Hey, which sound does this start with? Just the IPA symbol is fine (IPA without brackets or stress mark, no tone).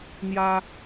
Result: n̪